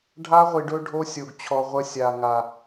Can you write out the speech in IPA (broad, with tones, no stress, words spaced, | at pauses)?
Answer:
ɖʱa˦ʁʷi˨ɖɵ˦ ɖʱo˦sʲo˨ɡ t͡ɕʰɔ˨ʁʷə˦sʲa˨ ŋa˨